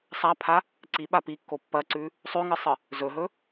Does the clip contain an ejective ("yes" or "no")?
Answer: no